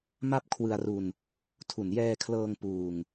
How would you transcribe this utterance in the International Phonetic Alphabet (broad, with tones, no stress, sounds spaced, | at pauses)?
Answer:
m a˥˩ p̚ kʰ w ɯ˧ a̯ r u˧ n | tʰ u˨˩ n j ɛː˧ kʰ l ɤː˧ ŋ p uː˧ ŋ